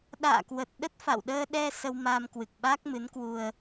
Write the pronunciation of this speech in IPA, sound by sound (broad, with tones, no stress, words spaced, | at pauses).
ɗa̰ː˧˨kwə˨˩t̚ɗə˦˥t̚ fa̰˧˨wɗəː˧ɗɛ˧ sə˧wmaː˧mkwɨ˨˩k̚ɓaː˦˥k̚ mɨ˨˦nkwu˧ə̯